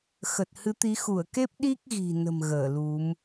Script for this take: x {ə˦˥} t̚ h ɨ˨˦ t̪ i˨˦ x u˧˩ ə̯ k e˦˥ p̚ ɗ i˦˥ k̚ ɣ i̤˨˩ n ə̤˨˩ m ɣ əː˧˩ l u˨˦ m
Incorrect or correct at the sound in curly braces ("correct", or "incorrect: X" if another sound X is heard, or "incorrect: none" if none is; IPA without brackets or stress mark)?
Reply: incorrect: ə˨˩